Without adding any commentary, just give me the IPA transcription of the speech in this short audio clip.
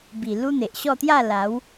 bi˨˩ lu˦n̪e˨ʔɕɔ˥˧ t̪ja˥˧la˨˦w

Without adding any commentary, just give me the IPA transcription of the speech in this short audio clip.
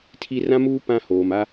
tʰi˦ rã˦muː˦ pã˦ hoː˨ma˦

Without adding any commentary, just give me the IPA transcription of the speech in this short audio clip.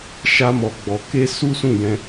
ʃa˦mɔ˧ɡ͡bɔ˧ ke˦ su˦sũ˦˨ jɛ̃˧

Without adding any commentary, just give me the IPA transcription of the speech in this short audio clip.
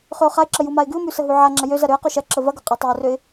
χøʊ̯χaɪ̯ǁə jumaɪ̯ɡʉʊ̯mʉ səɦʉʕaŋ͡ǁɐ jøz ɐɾøə̯qø ʃɐǁə vɐɡø qʼatˤɐʊ̯røɪ̯

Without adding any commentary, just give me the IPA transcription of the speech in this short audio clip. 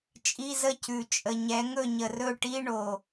t͡ʃʼi˧˥˧zə˥˩cʉ˨˩ t͡ʃʼə˨˩ɲɛ˩˥ ŋɵ˥˩ɲə˨˩rɵ˥˩ʈi˧˥˧ ɳo˨˩

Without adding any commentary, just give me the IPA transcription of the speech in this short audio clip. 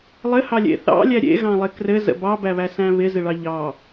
lˠɘhɑlʲḛ θɑ̰lʲæ ɾʲḛɣɑ̃lˠɪ krɘzə̰ bɑbæβæsæ̃ βɪzɪɭɑ ʎɑ

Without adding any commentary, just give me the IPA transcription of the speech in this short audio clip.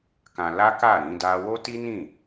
kã˧ la˦ka˦˨ ɾĩ˨˦da˦ wo˦ti˦nĩ˦˨

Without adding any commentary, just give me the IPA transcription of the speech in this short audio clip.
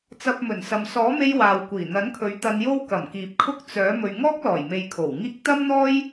t͡sɐ˨p̚ mɵ˨˩nsɐ˨m sɔː˨˥me˧j waː˨wkʷiː˨˩ n̪ɐ˨˥nkʰɵ˨˥ɥ t̪ɐ˧njo˥wkɐ˨˩m kiː˨p̚kʰʊ˥k̚ t͡sœː˨˥ mɵ˨ɥŋɔː˥k̚lɔː˨˩jme˨j kʰo˨˩wŋiː˥k̚ t̪ɐ˥mn̪ɔː˥j

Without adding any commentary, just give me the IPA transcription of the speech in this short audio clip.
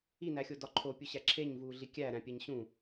inæxʲodɒ ǃʰopʲuɕæ ǁʰeɲvuːɮi kʲæ ɾæ̃pʲæɲ ɕũ

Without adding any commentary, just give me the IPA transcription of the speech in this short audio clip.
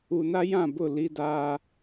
u˨na˦jã˦˨bʊ˦˨ li˦daː˦

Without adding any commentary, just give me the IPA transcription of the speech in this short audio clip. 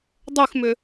dˤʉxmʏ

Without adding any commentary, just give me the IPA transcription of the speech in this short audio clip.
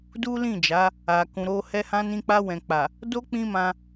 du˦lĩ˦˨d͡ʒa˨˦ | a˨kũ˨ɾo˧ hɛ˧hã˧nĩ˧k͡pa˧ wɛ̃˨k͡pa˨ | do˦ k͡pĩ˦mã˧

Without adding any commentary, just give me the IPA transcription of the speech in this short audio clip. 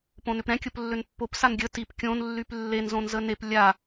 põnʏpɾɛ̃ kʲʊplːʏnpːop sanɡʲə tip kʲõn lːyplːen zõnzənep lʲa

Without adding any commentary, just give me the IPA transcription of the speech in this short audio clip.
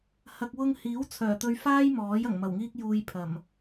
hɐ˨k̚wʊ˧ŋhiː˨˥w t͡sʰœː˨˩t̪ɵ˧ɥfaː˥j mɔː˨˥jɐ˨˩ŋ mɐ˨˩wŋiː˥k̚juː˧j pʰɐ˨˩m

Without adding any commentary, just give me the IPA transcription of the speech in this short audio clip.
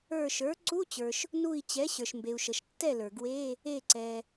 ə˞˧˩ʃə˞˩˥ ǀu˧˥˧t͡ɕə˞˩ʃ | nu˧˩i̯ t͡ɕɛ˩˥ɕə˞˩ʃmbe˩u̯ ʃə˩ʃtːɛ˥˩lə˞˩ ɡwe˧˥˧ | e˧˩ǀɛ˩

